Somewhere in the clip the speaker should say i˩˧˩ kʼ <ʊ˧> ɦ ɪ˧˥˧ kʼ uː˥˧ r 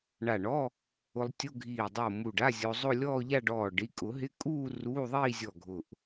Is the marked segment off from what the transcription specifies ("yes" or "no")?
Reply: yes